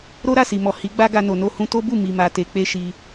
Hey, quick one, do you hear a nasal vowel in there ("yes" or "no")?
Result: yes